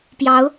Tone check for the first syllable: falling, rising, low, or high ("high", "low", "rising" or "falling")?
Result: rising